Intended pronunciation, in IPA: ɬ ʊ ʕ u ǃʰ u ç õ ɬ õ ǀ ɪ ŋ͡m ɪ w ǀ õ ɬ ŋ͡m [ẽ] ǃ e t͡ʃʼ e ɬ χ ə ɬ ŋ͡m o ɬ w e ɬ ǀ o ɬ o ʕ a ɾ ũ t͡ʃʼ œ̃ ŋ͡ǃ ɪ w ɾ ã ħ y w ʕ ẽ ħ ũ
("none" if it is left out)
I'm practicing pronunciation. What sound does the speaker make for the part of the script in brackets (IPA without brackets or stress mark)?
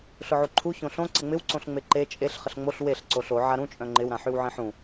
e